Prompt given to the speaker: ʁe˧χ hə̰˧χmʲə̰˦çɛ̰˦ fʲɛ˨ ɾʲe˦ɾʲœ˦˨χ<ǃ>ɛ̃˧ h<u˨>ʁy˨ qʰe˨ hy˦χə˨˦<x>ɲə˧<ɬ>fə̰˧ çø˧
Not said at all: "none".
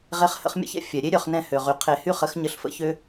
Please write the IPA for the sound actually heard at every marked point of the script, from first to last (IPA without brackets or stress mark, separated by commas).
n, ø˨, x, ɬ